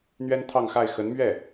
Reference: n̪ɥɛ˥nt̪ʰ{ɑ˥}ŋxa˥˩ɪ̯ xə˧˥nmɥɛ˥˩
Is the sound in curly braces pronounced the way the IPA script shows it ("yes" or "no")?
no